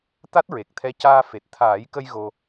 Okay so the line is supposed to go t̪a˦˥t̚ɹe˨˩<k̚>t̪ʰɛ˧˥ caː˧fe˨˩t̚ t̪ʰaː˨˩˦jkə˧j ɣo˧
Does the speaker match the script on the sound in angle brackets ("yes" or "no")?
yes